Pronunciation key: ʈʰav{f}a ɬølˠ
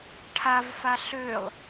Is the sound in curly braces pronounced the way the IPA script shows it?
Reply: yes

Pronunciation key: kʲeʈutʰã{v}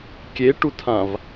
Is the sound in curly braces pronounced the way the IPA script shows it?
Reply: yes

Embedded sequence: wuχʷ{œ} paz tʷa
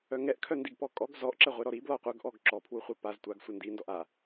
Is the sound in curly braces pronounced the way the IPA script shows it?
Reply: yes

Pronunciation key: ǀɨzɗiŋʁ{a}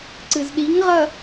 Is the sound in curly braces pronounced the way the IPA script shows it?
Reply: no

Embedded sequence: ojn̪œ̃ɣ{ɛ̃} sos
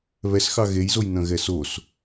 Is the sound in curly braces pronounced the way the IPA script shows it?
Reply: no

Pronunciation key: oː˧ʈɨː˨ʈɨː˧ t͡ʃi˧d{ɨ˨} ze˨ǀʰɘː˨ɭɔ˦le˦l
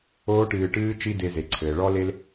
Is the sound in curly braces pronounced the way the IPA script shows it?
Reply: no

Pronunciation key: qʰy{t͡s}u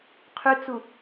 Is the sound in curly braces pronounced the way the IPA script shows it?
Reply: yes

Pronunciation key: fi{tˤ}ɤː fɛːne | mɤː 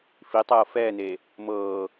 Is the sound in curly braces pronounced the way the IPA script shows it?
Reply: yes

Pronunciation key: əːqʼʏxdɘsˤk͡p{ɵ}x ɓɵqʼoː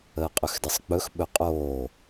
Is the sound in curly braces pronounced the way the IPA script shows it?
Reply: yes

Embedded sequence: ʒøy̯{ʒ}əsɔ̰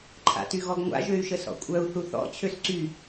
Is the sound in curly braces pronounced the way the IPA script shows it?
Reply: no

